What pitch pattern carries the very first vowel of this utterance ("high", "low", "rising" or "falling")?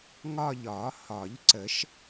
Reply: falling